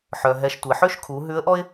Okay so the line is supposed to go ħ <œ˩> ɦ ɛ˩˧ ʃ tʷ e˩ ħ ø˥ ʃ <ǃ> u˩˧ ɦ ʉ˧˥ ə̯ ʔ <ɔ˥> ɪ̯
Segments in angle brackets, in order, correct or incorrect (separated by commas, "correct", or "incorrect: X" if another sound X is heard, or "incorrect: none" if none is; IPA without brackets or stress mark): correct, incorrect: kʰ, correct